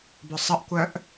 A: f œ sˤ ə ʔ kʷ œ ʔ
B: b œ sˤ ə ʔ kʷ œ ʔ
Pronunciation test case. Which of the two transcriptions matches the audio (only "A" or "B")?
B